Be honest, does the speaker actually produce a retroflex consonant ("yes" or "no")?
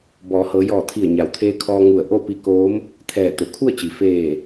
no